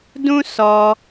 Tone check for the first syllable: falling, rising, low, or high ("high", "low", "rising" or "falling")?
high